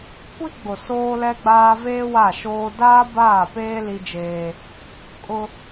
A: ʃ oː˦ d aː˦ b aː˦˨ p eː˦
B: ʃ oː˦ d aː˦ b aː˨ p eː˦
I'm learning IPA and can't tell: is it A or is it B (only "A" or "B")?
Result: A